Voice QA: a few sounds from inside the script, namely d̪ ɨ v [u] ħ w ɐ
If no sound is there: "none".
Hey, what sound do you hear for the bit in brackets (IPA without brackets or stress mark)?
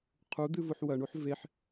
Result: u